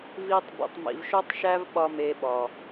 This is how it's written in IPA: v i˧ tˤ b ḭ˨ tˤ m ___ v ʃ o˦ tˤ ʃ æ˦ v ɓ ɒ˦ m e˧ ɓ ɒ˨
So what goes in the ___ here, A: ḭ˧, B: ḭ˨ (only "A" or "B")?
B